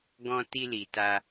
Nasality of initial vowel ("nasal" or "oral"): nasal